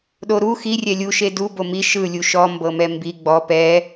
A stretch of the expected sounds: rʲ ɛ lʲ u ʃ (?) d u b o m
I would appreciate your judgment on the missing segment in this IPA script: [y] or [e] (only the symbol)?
e